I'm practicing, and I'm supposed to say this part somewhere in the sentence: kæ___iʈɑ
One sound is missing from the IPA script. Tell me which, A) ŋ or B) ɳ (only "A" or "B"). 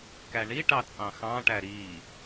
B